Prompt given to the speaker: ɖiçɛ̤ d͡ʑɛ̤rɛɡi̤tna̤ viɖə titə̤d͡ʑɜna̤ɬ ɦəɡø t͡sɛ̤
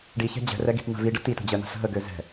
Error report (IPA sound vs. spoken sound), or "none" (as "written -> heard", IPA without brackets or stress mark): t͡s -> z